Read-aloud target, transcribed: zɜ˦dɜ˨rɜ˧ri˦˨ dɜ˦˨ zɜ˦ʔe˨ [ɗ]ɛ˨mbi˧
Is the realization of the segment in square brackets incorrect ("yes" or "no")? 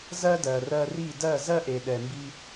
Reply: no